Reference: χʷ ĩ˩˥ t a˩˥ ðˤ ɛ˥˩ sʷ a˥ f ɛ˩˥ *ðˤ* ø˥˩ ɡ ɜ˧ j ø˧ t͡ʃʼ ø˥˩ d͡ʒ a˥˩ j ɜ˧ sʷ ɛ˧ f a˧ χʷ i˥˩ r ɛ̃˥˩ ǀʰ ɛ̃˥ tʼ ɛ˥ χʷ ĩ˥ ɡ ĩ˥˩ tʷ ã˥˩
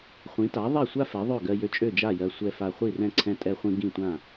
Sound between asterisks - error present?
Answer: no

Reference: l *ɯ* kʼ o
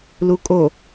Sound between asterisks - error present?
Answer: yes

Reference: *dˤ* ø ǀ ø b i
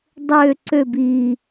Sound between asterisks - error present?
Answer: no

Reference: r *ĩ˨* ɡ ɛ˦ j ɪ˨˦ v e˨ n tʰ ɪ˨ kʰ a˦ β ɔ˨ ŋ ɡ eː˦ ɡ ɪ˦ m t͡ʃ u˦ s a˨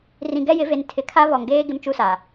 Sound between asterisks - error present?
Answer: no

